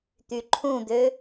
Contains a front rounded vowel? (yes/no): yes